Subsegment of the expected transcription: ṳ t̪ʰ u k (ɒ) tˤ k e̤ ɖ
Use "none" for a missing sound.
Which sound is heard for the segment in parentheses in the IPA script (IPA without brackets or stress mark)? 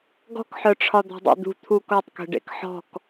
ɒ